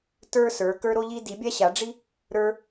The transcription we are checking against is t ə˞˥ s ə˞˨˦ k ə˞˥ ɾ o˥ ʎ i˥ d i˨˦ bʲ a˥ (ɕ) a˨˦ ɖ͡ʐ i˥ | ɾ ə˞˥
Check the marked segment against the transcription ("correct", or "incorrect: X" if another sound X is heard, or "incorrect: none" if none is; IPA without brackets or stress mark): correct